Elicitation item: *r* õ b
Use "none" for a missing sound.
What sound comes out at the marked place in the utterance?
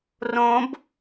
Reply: r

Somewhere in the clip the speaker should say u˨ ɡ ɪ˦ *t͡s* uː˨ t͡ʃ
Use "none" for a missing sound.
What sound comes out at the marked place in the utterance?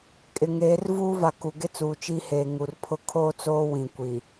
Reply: t͡s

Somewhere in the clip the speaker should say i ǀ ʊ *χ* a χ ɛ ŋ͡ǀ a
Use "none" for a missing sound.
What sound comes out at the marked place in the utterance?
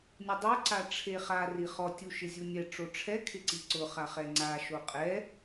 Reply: χ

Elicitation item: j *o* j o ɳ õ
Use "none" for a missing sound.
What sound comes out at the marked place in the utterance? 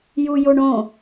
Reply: u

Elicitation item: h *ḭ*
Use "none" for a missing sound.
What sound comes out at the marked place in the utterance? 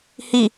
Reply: i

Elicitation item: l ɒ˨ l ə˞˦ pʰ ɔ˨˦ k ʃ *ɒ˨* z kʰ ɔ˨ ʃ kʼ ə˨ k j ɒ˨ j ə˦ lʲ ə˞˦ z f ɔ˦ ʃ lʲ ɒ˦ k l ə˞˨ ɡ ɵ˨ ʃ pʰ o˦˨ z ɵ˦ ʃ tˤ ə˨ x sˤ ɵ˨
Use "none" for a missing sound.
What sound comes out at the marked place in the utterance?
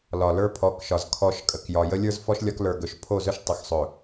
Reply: ɒ˨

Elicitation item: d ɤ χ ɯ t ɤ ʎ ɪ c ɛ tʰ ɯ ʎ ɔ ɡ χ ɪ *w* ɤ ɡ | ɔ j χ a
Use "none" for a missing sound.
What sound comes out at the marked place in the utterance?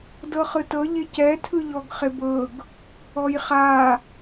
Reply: b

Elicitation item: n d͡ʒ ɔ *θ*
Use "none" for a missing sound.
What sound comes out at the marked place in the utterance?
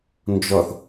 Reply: θ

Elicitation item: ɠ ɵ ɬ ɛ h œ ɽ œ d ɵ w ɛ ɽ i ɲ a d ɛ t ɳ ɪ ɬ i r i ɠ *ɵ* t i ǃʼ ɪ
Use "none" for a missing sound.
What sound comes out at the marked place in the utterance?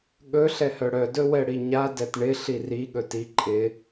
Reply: ɵ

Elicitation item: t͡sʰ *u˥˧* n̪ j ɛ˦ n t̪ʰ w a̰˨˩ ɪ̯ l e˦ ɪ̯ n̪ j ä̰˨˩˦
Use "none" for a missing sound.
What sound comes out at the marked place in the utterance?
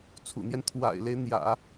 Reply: ṵ˨˩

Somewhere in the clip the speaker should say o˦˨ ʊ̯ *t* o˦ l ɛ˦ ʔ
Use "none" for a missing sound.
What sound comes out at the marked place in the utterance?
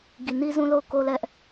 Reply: k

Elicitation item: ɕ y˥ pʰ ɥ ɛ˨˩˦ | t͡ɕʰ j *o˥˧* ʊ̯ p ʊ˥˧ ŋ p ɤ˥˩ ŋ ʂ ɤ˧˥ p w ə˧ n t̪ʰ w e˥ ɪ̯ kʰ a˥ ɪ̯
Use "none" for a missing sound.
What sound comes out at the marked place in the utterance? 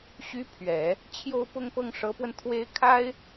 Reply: o˥˧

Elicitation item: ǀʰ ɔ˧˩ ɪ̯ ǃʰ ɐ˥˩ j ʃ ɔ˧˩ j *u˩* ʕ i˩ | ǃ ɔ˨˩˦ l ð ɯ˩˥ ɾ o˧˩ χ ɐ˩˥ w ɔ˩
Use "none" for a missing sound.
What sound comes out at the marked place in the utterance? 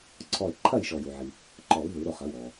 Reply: u˩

